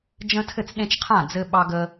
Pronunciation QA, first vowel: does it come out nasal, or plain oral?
nasal